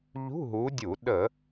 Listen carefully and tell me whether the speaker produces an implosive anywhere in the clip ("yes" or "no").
yes